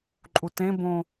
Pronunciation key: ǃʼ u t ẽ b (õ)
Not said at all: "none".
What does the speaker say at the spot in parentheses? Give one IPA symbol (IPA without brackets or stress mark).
õ